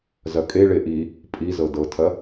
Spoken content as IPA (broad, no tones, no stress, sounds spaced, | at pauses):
z ɐ kʼ e ɭ e ʔ i | pʼ i z ɤ d ɤ tʰ ɐ